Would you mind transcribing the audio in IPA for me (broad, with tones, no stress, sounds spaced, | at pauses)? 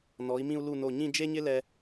n ɔ˩˧ i̯ m ĩ˧ u̯ l u˧˩ n o˧˩ ɲ ĩ˥˧ d͡ʒ e˥ ɲ ɪ˥ l ɛ˧